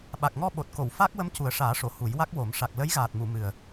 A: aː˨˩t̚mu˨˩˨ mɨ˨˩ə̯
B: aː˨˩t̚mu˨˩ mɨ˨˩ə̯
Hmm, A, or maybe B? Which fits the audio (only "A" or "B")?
A